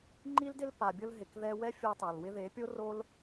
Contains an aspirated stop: no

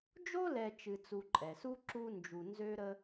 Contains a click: yes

